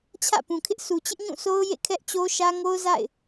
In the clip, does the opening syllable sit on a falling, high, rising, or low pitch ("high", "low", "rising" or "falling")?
falling